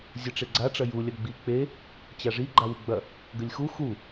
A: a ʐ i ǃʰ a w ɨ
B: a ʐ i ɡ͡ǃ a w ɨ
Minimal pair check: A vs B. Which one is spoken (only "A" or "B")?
B